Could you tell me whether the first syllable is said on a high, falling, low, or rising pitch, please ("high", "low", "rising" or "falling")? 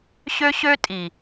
high